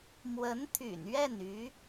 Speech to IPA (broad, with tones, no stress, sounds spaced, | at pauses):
m w ə˧˥ n t̪ʰ y̰˨˩ n ɥ ɛ˥˩ n y˧˥